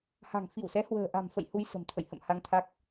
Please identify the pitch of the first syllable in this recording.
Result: low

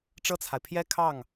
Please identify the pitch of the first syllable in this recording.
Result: falling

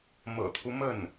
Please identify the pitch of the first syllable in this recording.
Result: low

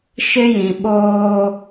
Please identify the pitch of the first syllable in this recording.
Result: high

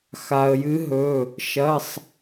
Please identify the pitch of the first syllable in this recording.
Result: low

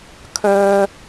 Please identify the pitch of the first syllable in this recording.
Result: high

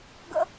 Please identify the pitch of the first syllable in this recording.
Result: high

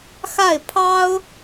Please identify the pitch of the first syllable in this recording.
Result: falling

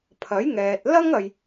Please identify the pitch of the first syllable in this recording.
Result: rising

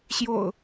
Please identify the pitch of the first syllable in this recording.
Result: low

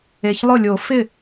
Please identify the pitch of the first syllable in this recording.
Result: low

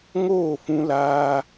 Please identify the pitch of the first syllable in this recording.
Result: falling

